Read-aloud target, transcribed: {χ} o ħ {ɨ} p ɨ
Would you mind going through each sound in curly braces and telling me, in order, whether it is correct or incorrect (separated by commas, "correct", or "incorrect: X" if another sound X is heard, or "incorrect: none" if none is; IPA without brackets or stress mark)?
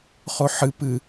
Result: correct, correct